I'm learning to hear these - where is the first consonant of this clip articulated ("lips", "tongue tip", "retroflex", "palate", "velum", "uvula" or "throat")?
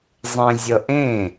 tongue tip